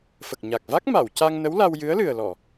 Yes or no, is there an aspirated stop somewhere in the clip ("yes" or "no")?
no